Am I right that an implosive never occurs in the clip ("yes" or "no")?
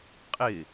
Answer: yes